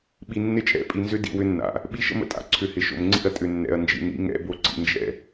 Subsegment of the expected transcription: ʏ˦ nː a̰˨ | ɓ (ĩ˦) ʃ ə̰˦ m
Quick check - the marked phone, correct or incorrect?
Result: incorrect